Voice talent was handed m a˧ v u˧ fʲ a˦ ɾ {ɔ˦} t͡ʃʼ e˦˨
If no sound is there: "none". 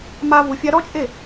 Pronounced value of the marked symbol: ɔ˦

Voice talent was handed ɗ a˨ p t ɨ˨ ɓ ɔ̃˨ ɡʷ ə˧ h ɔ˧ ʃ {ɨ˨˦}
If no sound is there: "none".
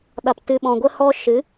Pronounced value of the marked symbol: ɨ˨˦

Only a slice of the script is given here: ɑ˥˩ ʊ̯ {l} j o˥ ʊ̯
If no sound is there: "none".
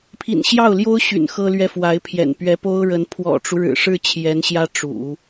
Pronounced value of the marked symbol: l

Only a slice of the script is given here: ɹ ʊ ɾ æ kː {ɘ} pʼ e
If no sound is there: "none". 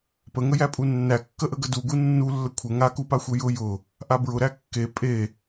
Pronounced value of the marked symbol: e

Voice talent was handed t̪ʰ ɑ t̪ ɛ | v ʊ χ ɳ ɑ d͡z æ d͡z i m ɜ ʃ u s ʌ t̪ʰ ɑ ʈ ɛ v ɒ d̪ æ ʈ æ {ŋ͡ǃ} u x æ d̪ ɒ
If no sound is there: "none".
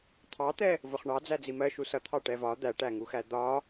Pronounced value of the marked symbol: ŋ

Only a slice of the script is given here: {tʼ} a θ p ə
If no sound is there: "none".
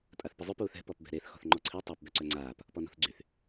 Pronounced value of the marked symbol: tʼ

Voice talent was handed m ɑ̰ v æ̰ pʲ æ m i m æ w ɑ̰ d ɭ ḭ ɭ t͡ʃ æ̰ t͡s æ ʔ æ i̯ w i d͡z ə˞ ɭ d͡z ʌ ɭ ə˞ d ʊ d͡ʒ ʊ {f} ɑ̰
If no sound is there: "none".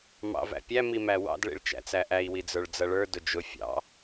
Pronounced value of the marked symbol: fʲ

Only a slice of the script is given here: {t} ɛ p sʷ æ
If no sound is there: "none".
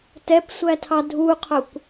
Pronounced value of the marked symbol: t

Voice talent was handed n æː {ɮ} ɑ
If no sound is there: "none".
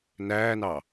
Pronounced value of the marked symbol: n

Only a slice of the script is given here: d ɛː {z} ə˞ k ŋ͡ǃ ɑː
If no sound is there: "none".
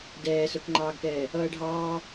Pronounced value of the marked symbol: s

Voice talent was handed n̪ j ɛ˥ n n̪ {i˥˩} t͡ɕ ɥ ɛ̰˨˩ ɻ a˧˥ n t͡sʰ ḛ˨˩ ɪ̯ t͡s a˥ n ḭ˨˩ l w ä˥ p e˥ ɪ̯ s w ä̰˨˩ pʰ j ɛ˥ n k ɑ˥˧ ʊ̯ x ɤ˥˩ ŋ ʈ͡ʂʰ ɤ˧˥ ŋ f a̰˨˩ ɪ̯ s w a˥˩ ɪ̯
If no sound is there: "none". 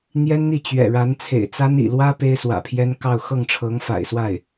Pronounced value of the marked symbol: i˥˩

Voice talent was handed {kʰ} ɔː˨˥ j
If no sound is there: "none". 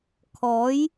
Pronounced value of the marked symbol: kʰ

